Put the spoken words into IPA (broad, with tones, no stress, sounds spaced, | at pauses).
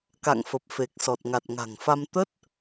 k a̰˧˨ ŋ f ə˨˩ p̚ f e˨˩ k̚ s ɔ˨˩ t̚ ŋ a˨˩ t̚ ŋ a̤˨˩ ŋ f a˧ m t̪ ə˦˥ t̚